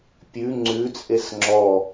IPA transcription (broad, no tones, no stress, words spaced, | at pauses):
pʲʉ ŋ͡ǀʉt͡sʼes ŋ͡ǁɔ